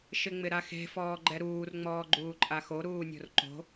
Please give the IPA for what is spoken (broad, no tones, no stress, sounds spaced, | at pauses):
ʃ ɪ ŋ͡m ɪ ɾ a x e̤ f ɔː ɡ͡ǃ ɛ ɾ uː r ŋ͡m ɔː ɡ͡ǃ uː ǃʼ a x o ɾ uː nʲ o̤ r ǃ o̤